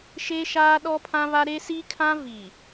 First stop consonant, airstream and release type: implosive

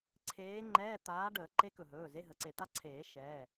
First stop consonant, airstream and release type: click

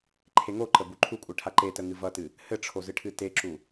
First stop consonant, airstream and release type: click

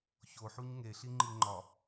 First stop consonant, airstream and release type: click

